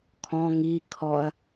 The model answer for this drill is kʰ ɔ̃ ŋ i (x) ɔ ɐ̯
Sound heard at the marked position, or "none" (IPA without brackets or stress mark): kʰ